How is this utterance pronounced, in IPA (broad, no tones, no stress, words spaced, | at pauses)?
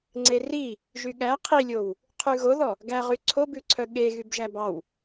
ŋ͡ǀeri | ʒyɠæ qʰilʲow | qʰʉɣoðɔ | ɡæʁy ǀʰobʉǀʰœ ɠe ɣybʒæbɑw